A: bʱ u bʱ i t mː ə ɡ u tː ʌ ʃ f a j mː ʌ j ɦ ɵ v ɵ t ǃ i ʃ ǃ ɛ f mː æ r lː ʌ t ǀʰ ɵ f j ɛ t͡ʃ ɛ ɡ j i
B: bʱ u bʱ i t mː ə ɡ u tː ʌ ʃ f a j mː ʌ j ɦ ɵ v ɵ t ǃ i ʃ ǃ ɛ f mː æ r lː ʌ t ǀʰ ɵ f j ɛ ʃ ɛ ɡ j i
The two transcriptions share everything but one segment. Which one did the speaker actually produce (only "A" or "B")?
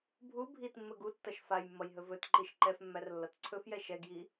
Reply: B